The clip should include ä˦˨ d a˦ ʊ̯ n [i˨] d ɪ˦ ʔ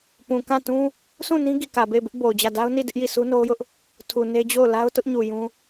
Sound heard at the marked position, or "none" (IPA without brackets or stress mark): i˦˨